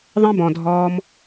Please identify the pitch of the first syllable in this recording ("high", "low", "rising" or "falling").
high